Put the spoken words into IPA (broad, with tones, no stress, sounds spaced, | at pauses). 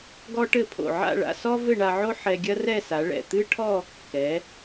ɡ ɔ˥ ʈ ɘ˥˧ pʰ o̰˧˩ ʕ a̰˥˧ ɭ a̰˧ s ɔ˥ v ɘ˥˧ ɳ a˧ ʕ o˥ ħ ɛ˧ ɡʲ ɐ˥ r ɛ˥˧ s a˩˧ ɭ ɛ̰˧˩ t̪ ɨ˥ ʈʰ ɔ˥˧ | k ɛ˩˧